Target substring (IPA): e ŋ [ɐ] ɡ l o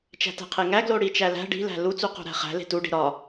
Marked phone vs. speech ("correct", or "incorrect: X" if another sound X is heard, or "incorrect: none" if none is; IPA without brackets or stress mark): incorrect: æ